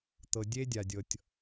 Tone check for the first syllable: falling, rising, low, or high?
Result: low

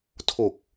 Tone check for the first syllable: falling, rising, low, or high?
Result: low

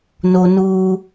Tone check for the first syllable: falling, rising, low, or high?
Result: high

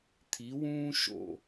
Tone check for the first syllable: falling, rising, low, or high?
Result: rising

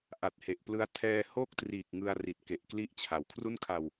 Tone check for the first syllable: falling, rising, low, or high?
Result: low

